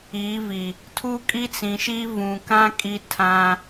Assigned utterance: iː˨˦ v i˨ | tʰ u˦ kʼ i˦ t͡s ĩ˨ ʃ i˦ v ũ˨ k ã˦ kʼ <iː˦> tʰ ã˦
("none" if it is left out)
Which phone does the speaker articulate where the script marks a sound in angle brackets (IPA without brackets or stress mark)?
i˦